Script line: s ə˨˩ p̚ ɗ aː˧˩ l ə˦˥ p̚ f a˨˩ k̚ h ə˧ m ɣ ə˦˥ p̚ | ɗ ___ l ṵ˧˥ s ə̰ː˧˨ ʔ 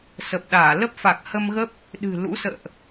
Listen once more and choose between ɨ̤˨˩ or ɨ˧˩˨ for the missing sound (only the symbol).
ɨ̤˨˩